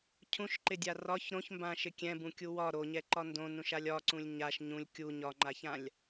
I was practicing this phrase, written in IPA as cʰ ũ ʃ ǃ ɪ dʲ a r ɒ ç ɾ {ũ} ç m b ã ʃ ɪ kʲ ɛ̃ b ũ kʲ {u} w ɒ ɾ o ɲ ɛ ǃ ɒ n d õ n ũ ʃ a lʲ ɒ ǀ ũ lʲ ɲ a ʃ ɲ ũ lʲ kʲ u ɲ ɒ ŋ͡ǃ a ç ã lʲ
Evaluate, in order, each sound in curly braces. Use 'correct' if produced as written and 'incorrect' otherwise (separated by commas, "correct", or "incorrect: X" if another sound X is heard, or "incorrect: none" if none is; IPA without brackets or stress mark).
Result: incorrect: õ, correct